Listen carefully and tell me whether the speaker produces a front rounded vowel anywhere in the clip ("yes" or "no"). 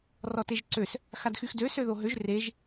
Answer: yes